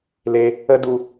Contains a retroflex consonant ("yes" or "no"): no